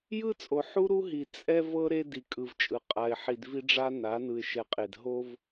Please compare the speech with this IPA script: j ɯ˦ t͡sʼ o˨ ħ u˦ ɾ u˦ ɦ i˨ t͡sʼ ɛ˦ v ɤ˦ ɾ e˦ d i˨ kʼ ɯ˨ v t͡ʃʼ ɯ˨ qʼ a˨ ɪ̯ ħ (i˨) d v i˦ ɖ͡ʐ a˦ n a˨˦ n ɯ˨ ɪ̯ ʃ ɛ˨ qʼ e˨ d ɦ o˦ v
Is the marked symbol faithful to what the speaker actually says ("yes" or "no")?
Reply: yes